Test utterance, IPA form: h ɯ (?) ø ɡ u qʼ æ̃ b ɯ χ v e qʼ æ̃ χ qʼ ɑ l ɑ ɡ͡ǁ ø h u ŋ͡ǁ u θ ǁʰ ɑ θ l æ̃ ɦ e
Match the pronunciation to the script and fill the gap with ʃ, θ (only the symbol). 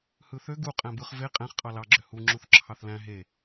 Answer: θ